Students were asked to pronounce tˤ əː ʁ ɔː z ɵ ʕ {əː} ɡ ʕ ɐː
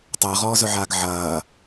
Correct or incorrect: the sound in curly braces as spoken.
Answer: incorrect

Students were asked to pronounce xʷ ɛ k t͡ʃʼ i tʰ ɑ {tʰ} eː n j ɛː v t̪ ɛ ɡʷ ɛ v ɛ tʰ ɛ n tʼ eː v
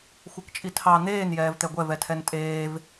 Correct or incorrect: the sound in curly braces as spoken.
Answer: incorrect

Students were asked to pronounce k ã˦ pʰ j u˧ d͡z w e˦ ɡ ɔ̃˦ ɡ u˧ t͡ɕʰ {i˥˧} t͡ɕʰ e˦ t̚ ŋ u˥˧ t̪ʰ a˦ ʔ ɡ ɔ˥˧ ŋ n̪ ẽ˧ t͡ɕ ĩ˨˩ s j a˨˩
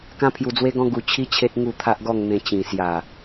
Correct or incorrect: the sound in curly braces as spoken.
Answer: incorrect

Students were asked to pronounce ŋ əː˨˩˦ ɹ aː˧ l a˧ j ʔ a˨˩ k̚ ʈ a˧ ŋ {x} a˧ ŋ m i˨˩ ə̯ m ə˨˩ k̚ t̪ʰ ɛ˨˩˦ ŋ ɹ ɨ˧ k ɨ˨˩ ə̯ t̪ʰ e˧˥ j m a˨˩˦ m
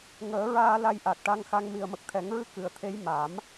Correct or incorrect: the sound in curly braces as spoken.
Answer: correct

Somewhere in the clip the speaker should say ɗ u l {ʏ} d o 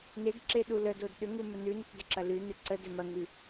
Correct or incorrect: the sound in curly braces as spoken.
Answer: incorrect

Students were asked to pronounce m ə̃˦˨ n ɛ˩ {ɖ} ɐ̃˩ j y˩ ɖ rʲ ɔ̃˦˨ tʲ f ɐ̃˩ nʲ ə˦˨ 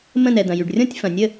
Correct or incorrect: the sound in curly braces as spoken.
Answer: incorrect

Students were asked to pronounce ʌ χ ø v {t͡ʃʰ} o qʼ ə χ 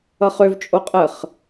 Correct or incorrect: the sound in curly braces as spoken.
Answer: incorrect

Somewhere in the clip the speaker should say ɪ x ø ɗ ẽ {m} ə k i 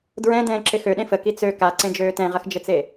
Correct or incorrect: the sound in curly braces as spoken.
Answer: incorrect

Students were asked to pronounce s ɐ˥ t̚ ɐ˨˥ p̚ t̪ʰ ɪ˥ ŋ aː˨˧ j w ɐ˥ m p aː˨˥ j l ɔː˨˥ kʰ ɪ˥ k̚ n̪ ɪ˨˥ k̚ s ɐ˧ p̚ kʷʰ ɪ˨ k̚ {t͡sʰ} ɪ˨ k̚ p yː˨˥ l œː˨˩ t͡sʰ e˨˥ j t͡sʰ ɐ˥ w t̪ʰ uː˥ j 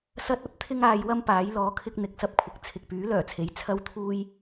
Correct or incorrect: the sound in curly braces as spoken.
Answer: correct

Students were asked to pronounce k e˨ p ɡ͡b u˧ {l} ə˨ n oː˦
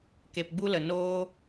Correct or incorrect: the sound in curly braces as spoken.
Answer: correct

